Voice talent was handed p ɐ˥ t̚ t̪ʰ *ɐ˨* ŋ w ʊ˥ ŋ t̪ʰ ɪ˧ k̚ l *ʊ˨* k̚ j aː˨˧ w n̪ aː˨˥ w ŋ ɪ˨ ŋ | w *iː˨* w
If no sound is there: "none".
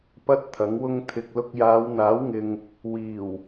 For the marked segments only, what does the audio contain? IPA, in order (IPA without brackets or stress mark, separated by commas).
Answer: ɐ˨˥, ʊ˥, iː˨˩